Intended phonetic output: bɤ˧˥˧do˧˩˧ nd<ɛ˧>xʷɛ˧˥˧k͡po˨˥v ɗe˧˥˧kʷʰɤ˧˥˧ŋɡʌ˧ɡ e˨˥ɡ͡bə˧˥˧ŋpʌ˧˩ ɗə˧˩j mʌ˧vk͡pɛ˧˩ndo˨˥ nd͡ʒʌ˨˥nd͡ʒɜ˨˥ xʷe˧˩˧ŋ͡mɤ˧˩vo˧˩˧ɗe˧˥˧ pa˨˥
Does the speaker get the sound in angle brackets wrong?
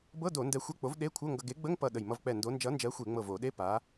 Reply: no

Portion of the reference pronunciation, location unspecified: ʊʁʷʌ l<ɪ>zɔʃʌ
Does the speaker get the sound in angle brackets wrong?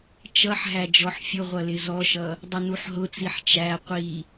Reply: no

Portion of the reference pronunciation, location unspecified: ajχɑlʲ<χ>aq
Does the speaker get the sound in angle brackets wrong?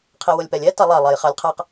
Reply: yes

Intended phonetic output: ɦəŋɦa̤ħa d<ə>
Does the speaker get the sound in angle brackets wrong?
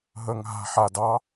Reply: yes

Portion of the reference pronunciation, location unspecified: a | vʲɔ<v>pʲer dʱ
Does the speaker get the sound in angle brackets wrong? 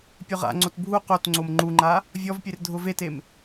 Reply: no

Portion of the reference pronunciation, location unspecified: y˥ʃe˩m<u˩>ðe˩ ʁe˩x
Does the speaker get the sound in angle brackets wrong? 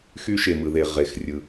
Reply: yes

